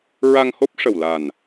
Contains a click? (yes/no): no